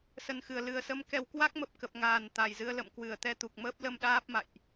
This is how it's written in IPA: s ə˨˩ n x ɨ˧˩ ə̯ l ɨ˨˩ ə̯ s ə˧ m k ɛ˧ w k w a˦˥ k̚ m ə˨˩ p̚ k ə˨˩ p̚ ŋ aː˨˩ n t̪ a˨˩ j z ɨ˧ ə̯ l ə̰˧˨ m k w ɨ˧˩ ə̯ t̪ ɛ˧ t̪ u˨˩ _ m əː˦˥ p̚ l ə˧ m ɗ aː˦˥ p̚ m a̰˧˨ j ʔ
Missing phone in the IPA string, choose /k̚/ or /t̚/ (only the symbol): k̚